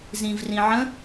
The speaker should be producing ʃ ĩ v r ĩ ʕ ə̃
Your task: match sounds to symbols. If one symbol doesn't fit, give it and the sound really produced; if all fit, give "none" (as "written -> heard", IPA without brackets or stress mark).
ʃ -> z